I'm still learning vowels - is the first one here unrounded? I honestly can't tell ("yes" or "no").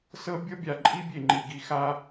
yes